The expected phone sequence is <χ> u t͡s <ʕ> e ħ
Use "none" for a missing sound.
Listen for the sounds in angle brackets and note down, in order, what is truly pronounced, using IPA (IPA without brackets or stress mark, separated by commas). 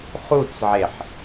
χ, ʕ